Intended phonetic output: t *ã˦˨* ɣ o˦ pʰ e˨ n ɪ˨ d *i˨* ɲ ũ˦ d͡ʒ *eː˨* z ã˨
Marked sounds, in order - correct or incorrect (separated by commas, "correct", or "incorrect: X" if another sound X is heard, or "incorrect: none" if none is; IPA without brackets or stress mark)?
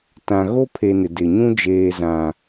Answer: incorrect: ã˨, incorrect: ɪ˨, correct